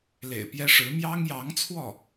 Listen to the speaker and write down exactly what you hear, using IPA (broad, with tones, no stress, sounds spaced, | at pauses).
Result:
l ḛ˨˩ ɪ̯ p j ɛ˥ ʂ ɻ̩˧˥ m j ɑ˥ ŋ j ɑ˧˥ ŋ t͡sʰ w ɔ˥˩